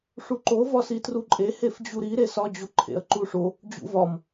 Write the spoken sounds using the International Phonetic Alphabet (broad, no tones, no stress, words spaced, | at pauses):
ʂuǃo vɒsitruǃʼe hefd͡ʑuɾi ɾesɒ d͡ʑoǃʰḛɐ̯ǃuʂo | d͡ʑṵvɒm